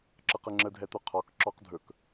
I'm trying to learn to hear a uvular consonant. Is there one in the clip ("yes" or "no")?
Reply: yes